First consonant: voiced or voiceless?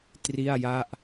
voiceless